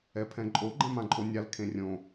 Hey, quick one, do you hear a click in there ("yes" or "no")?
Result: yes